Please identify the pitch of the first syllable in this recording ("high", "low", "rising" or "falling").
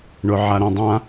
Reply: low